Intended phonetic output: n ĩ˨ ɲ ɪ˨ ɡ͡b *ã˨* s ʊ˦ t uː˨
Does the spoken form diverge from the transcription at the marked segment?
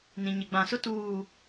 no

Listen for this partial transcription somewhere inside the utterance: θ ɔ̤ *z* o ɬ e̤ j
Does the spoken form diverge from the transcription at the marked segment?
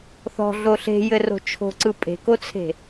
yes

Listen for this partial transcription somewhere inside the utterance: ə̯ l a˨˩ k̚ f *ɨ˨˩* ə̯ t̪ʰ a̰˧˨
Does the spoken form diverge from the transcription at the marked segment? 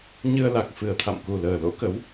no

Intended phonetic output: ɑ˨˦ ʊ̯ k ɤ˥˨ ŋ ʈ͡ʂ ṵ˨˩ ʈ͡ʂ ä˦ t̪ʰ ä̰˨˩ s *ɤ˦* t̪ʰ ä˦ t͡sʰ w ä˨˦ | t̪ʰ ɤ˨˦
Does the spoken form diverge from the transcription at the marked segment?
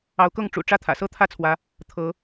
no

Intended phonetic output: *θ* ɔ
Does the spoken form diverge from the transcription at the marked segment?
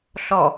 yes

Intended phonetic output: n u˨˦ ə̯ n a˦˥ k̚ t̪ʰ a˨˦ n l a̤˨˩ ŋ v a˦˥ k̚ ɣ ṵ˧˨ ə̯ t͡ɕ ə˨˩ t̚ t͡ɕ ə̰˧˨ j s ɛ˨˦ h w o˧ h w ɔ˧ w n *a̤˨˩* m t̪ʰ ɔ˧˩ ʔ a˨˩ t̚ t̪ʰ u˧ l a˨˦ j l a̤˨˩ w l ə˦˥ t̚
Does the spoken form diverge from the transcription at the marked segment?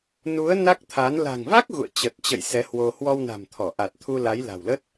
no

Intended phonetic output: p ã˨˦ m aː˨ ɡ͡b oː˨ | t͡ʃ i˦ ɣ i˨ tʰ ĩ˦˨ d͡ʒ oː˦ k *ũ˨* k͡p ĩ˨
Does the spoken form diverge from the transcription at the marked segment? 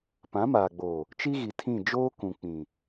no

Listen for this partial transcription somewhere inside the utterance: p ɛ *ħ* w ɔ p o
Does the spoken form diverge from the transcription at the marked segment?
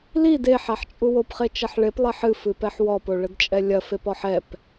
no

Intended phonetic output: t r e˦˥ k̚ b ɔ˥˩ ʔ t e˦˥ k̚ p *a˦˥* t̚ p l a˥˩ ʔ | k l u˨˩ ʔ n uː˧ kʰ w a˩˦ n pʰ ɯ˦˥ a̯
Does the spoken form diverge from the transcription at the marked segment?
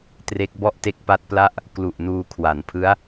no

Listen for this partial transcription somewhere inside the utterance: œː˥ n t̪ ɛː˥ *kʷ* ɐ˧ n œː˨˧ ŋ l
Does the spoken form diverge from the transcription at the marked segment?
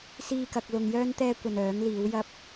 no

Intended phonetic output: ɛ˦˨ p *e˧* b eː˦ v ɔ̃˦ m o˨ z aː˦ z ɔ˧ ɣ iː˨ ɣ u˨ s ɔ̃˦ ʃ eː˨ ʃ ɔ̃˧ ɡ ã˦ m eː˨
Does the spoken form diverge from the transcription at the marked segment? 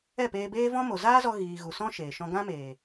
yes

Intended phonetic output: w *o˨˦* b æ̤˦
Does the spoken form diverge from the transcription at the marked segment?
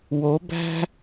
no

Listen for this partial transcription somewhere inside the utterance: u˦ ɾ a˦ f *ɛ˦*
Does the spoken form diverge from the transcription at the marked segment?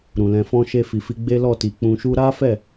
yes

